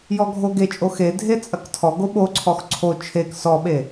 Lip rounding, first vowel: rounded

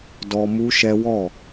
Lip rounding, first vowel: rounded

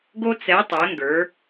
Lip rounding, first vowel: rounded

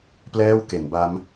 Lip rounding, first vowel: unrounded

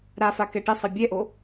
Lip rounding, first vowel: unrounded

